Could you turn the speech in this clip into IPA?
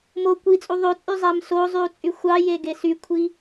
m o kʷ i t͡sʼ u ðˤ ø t͡sʼ y zˤ æ m s o zˤ y u̯ t͡sʼ y xʷ ɑ j e ɡ e s y kʷʰ i

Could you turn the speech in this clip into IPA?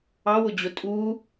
ɑ w ʊ d͡ʑ ʊ tʼ u

